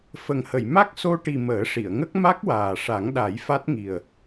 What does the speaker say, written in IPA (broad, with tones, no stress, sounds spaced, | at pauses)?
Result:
f ə˨˩ ŋ h ə˨˩˨ j m a˦˥ k̚ s o˧ ʈ i˨˩ m əː˨˩˦ ʂ i˨˩˨ ə̯ ŋ ə˦˥ k̚ m a˦˥ k̚ w aː˨˩ ʂ a˨˩˦ ŋ ɗ a˨˩˦ j f a˦˥ t̚ ŋ i˨˩ ə̯